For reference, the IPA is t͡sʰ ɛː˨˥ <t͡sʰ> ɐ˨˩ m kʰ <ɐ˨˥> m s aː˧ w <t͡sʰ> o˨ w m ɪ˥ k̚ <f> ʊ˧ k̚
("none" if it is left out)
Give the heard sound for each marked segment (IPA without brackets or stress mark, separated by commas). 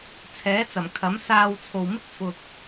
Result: t͡s, ɐ˨˥, t͡sʰ, f